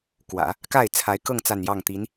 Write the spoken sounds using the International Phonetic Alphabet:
k w ä̰˨˩˦ | k a˥˩ ɪ̯ t͡sʰ a˧˥ ɪ̯ k ɤ˥˧ ŋ t͡s a˥˧ n j ɑ˥˩ ŋ t̪ i˧˥ n

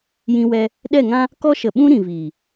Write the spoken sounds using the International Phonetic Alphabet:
j ĩ˧ w ɛ˧ | ɗ ɛ˦˨ ŋ ã˦ | k ɔ˦ ʃ ə˨ ɓ ũ˦ ɾ ĩ˨ v iː˨

